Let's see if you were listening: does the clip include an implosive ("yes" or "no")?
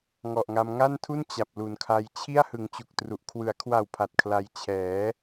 no